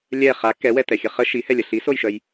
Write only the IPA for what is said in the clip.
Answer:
lʲ ɛ χ a k ɛ w ɛ t ɛ xʲ ə χ ə ʃ i h ɛ lʲ ə ɬ i s o j ʃ œ j

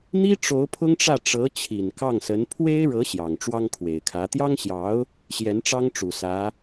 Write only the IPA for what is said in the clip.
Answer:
n̪ i˥ ʈ͡ʂ o˧˥ ʊ̯ pʰ ʊ˥ ŋ ʈ͡ʂ ä˥˩ ʈ͡ʂ ɤ˧˥ t͡ɕʰ i˨˩ n k ɑ˥˩ ŋ s ə˧˥ n pʰ w e˥ ɪ̯ ɻ ɤ˧˥ ɕ j ɑ˨˩ ŋ ʈ͡ʂ w ɑ˥ ŋ kʰ w e˨˩ ɪ̯ kʰ ä˧˥ t̪ j ɑ˥ ŋ ɕ j ɑ˧˥ ʊ̯ | ɕ j ɛ˧˥ n ʈ͡ʂ ɑ˥ ŋ ʈ͡ʂ u˨˩ s ä˧˥

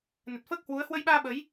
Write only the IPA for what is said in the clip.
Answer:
n ə˨˩ t̚ f əː˦˥ k̚ h w u˨˦ ə̯ h w ə˧ j ɓ aː˧ ɓ ə˨˦ j

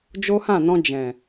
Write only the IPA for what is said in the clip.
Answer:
d͡ʒ o˦ h ã˦˨ n ɔ̃˧ d͡ʒ ɛ̃˨

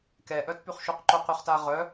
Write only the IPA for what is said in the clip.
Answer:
k ɛ ʔ œ t p y χ ʃ u q ǃ o q y χ t a ʁ œ

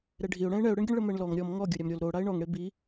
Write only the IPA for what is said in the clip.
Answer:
ɾ ɛ ɖʱ i ʊ̯ ɽ ɛ̃ ɪ̯ ɳ ɛ ʊ̯ ɽ e ɳ ɡʲ ə ɳ ɭ ə m ɛ ɳ l ɔ ŋ ɾʲ ɔ m ŋ ɔ ɡʲ o ɾʲ a m ɾʲ o l ɾ o ɽ a ɪ̯ ɳ ɔ ŋ ɽ e b i

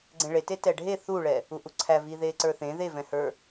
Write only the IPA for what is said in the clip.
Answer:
ɡ͡ǀ ẽ ɭ e t e t ɛ ɖʱ e θ u ɭ ɛ | u ʔ u ǀʰ æ v iː ð eː ǀ ə˞ θ ẽ ð e v ɛ̃ h ə˞

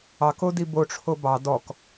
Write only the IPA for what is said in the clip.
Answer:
ɑ k o d i b o ʈ͡ʂʰ o b ɑ d ɔ k

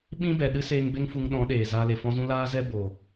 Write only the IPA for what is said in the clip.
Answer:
ɓ ĩ˦ b ɛ˨ ɗ ɨ˦ s eː˧ ŋ b e˦ ŋ f u˧ ŋ ɗ ɔ̃˨˦ ɗ eː˨ z aː˧ l e˨ f ɔ̃˦ z ũ˦ l aː˦ z ɛ˦ b o˨

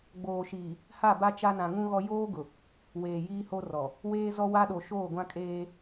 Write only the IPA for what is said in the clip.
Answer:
ɡ͡b oː˨ ʃ iː˨ | h a˦˨ b a˦ t͡ʃ a˦ n ã˨ ŋ ũ˦ ɣ ɔ˦ j oː˦ ɡ ʊ˨ | w eː˨ j iː˦ h o˦ r ɔ˨ | w eː˦ z ɔ˦ w a˦ ɗ o˨ ʃ oː˦˨ ɡʷ ã˦ kʼ eː˦

